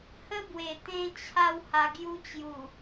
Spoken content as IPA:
hə˦bwe˨˩ t̪ẽ˦t͡ɕʰa˥˧w ha˧ɡju˦ t͡ɕju˨˩

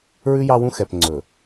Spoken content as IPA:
ɹʉ˦jɑ˦wũ˦ xɛ˨p ŋ͡ǀɵ˨

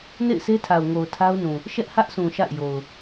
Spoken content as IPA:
nḛ˦˨ɪ̯sʰe˦tʰa˨ʊ̯ ŋo˨ʊ̯tʰa˦ʊ̯nũ˨ | ʃɛ˦ʔhä˦ʔsʰũ˨ ʃa̰˦˨ɪ̯jo˨ʊ̯

